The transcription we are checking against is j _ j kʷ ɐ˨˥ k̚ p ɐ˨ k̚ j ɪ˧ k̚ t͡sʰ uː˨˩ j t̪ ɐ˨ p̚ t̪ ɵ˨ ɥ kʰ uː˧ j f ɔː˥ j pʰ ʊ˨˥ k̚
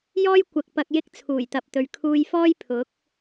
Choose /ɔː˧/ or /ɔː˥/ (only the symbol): ɔː˥